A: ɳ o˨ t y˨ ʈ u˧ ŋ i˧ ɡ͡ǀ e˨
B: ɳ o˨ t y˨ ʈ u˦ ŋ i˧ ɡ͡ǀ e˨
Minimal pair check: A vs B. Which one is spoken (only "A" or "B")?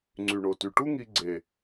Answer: B